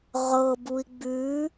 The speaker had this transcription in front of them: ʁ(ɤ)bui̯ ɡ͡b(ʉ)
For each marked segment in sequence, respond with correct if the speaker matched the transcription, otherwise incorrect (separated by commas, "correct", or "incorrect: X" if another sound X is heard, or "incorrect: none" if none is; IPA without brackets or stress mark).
correct, correct